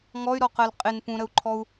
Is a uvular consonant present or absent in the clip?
present